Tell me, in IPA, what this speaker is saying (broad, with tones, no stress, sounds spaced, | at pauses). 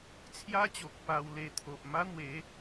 t͡sʰ j a˦ t͡ɕ o˨ k̚ p a˧ w l e˧ t̪ʰ o˨ ʔ m a˦ n̪ w e˨˦